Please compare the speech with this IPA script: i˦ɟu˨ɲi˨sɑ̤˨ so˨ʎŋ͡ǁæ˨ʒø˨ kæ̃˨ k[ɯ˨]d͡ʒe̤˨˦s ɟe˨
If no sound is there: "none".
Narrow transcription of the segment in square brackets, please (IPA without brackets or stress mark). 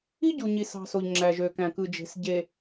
ɯ˨